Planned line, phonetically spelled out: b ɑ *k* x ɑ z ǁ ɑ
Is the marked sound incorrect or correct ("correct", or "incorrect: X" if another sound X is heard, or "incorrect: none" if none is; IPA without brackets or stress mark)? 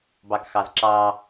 correct